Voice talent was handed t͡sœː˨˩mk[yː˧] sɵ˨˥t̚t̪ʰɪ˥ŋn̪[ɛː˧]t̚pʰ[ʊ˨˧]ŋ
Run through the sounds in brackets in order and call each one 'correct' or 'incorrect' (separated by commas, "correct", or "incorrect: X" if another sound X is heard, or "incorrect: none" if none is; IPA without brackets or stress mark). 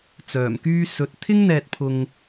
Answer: correct, correct, incorrect: ʊ˧